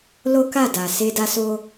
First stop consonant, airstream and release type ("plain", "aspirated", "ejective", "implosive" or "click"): plain